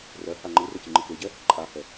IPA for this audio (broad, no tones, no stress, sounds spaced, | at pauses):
r ɜ h a ŋ͡ǃ ɯ r ə c ɯ ŋ͡ǃ ɯ k e ɟ ɛ | ǃʼ a h ɛ